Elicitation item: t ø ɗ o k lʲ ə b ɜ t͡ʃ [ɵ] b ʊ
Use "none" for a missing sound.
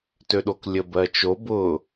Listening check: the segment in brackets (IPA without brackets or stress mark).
o